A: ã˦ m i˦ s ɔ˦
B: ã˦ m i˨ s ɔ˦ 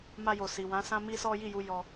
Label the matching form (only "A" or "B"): A